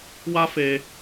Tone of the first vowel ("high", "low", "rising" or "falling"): high